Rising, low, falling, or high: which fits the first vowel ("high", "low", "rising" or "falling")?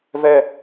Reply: high